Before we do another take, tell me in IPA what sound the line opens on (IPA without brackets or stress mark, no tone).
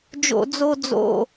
d͡ʒ